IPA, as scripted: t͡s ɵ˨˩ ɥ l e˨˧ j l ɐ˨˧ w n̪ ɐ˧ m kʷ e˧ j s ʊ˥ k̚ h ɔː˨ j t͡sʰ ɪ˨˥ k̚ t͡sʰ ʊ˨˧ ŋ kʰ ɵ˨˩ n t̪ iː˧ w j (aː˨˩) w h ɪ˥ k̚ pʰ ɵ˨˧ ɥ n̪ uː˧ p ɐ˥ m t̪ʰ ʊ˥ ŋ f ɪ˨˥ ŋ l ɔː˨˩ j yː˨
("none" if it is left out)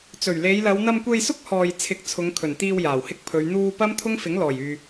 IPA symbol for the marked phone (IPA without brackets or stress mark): aː˨˩